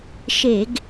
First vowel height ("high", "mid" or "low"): mid